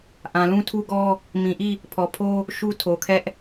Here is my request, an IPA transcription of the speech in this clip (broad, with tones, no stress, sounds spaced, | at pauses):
ʔ ã˨ l ũ˦ tʰ u˦ ɡ ɔ˦ | m ĩ˨ ʔ i˦˨ | pʰ ɔ˨ pʰ o˦ | ʃ u˦ tʰ o˨ kʰ ɛ˦ ʔ